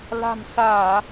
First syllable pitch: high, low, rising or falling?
low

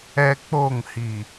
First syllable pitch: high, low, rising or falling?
high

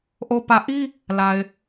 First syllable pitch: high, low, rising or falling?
low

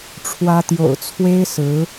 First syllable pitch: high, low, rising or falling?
high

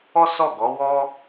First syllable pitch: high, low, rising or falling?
high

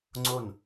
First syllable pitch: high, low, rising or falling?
falling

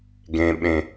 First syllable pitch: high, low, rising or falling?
low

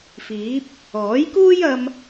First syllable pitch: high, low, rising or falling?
rising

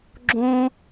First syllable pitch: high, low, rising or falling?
high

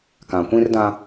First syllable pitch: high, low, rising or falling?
low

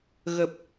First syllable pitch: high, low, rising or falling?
low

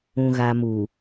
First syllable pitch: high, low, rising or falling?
low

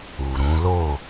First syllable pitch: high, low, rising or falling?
low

